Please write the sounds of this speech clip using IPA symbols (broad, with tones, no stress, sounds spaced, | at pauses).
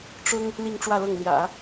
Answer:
ʈ͡ʂ ʊ˥ ŋ | l i˥˧ ŋ ʈ͡ʂ w ä˥˧ l ɤ˥˩ ŋ l j ä̰˨˩˦